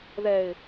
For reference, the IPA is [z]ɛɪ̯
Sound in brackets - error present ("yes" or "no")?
yes